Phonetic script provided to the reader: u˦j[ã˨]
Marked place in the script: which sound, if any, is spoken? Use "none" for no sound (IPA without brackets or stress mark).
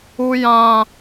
ã˦